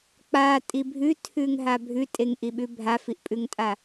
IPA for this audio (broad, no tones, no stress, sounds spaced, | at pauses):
k͡p a tʼ i bʱ ʉ tʰ ʉ ŋ ɦ a bʱ ʉ tʼ e ŋ ʔ i ɓ ʉ bʱ a f i ʔ pʼ ʉ ŋ tʼ a